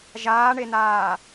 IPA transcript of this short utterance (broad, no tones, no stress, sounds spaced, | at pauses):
ʒ aː ɳ e n aː